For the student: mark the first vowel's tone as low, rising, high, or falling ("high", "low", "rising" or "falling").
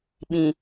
low